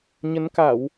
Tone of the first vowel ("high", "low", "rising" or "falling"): rising